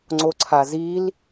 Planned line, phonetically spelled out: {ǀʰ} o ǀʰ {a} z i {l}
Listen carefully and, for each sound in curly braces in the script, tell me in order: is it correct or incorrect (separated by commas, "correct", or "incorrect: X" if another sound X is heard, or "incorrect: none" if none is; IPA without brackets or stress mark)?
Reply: incorrect: ŋ͡ǀ, correct, correct